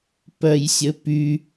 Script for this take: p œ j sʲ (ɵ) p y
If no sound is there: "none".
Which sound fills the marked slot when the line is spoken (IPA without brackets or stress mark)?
ɵ